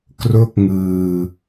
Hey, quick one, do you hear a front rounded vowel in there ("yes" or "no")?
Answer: no